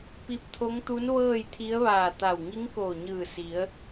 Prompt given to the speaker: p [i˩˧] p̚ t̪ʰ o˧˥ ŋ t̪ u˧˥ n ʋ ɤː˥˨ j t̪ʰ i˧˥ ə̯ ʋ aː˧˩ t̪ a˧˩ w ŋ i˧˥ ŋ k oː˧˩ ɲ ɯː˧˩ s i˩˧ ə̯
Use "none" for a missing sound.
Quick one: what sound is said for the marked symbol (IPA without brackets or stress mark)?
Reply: i˧